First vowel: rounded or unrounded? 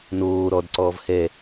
rounded